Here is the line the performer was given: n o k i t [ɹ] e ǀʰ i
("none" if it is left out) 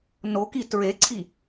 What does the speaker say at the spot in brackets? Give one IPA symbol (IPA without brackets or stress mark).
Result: ɹ